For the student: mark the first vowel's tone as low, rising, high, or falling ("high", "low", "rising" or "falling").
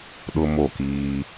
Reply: high